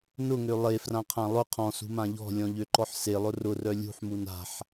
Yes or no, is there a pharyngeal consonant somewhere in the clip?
yes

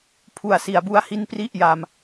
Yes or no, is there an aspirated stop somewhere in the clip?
yes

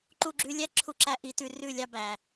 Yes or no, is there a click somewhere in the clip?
yes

